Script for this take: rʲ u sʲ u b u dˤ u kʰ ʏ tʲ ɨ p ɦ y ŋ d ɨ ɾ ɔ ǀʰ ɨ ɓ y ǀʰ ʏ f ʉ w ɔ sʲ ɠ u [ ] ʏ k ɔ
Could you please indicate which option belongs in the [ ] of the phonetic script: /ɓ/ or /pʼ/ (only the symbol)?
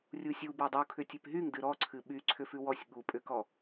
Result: pʼ